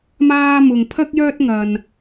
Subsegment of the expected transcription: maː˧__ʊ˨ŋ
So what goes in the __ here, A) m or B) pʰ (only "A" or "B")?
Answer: A